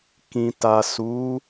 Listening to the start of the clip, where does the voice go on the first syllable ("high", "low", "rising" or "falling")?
low